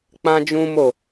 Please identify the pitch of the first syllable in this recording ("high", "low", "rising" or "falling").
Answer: high